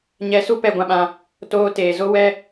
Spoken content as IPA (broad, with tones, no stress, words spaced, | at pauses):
ɲɛ˧su˦ pɛ˧ɡʷã˧ɓã˧ | toː˧teː˨zo˦wɛ˦